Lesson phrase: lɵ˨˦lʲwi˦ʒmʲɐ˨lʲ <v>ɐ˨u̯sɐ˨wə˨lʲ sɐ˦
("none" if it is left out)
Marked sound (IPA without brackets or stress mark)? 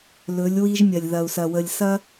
ð